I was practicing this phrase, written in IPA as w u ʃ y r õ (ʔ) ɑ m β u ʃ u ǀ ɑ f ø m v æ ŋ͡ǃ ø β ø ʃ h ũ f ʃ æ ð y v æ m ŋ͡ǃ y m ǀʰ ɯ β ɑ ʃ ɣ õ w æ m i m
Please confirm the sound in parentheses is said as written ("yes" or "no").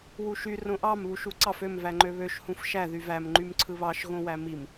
yes